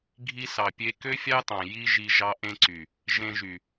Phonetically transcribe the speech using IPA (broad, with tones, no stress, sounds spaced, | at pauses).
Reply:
ɡʱ i˧ s ɑ˨ pʲ e˧ k ø˦ fʲ ɑ˦ t ɑ̃˨ j i˦ ʒ i˧ ʒ ɑ˦ ʔ ẽ˦ ǀ y˨ | ʒ ẽ˧ ʒ y˨